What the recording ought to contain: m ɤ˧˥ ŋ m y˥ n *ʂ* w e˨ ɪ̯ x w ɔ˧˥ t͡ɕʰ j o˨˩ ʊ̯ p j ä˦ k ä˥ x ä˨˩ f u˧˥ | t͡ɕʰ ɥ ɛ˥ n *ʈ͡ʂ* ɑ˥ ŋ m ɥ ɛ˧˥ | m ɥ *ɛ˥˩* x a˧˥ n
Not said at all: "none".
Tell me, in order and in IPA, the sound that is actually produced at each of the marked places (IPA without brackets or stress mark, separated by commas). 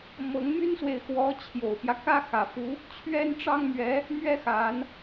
s, ʈ͡ʂ, ɛ˥